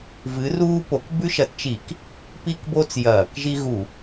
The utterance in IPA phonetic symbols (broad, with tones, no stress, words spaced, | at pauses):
vɨ˨˥ruː˦po˨˥k bʉ˦ʃɐ˨˥tt͡ʃi˧˩˧k | pi˦kbo˦t͡s jɐː˧˩˧kʒi˦ ɣu˧˩˧